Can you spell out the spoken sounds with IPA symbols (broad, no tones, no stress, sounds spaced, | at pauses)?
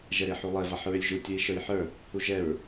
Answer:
ʒ ɛ ɾ e ħ u lˠ ɛ v a ħ ɹ ʏ lʲ ʒ u tʲ u i̯ ʃ ə˞ j ħ ə˞ | h u ʒ ɛ ɹ